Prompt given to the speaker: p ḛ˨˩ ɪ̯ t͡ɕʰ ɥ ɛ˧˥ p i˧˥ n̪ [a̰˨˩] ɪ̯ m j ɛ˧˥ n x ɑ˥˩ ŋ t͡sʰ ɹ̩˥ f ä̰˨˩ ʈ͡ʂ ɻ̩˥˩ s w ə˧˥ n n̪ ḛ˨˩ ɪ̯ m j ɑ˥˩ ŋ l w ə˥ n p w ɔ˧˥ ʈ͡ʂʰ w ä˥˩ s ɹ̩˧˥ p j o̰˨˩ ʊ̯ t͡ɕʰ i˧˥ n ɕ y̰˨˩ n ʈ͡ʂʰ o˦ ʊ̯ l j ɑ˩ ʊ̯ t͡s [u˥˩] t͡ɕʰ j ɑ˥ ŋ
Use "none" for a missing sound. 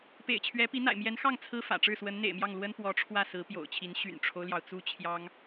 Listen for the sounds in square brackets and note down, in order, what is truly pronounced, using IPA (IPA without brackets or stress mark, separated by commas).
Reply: a̰˨˩, u˥